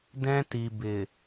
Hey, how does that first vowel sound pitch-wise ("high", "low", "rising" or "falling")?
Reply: high